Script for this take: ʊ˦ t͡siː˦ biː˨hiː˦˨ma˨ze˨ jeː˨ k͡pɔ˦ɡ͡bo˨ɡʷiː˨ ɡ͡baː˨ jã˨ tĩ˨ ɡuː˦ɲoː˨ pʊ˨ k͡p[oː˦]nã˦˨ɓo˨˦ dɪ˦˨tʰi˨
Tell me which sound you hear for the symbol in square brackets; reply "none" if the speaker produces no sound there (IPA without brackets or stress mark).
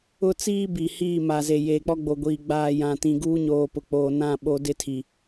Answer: oː˨